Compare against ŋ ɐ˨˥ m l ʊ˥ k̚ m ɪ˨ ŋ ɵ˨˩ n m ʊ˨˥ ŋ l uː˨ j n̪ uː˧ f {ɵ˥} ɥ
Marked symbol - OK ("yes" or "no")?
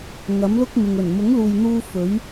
no